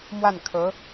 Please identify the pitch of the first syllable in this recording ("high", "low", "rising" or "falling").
falling